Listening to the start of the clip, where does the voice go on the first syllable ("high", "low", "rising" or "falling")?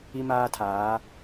high